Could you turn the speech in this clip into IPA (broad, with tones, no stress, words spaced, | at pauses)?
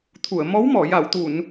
t̪ʰu˨˩˨ə̯mɔ˧˥wmɔ˨˩˨ ja˨˩˨wt̪u˨˩˨n